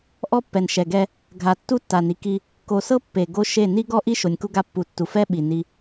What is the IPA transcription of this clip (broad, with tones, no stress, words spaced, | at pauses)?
ʔɔ˦pːɛ˨nʃɛ˨ɡɛ˦ | ɡʱa˨ tːu˦tːa˨ni˨ki˦ | ko˨sɤ˦ pːe˨ ɡo˦ʃe˦˨ ni˦ɡɔ˦ʔi˦ ʃo˨nʲku˦ɡa˦pːu˨ tːu˨ fɛ˦ ɓi˨ni˦